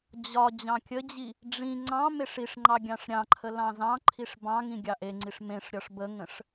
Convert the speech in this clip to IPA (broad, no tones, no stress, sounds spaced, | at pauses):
d͡ʑ ɒ d͡ʑ ɑ̃ kʲ ə d͡ʑ i | ɖ͡ʐ ĩ ŋ͡ǀ ɑ̃ m e ʂ i ʂ ŋ͡ǃ ɑ ɡʲ ɑ̃ ʂ ɾʲ ɑ̃ ǃʰ ə l ɑ̃ z ɑ̃ ǃʰ i ʂ b ɑ̃ ŋ ĩ ɡʲ ɑ ʔ e ŋ͡ǀ i ʂ m ẽ ʂ ɾʲ ɒ ʂ b ə ŋ ə̃ ʂ